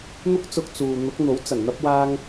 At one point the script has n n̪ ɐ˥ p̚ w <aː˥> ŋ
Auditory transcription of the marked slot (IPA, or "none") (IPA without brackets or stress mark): aː˥